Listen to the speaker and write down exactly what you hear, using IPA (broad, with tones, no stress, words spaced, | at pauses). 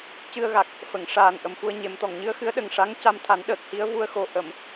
cɨ˧ə̯ɣa˨˩k̚ | fə˨˩˨ŋʂaː˨˩n ʔə˨˩mfu˧ə̯ɲe˨˩˦mt̪ɔ˨˩˨ŋ ɲɨ˧˥ə̯xɨ˧˥ə̯ɗə˨˩ŋ ʂa˧˥ŋ ca˧mt̪ʰa˨˩˦nɗəː˨˩k̚ hi˧˥ə̯vu˧ə̯xo˨˩˦ ʔə˨˩˨m